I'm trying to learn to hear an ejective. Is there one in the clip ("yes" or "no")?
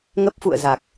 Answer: no